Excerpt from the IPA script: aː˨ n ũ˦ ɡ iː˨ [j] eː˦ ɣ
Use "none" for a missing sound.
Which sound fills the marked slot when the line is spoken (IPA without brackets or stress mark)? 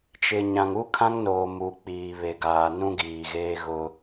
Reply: ɣ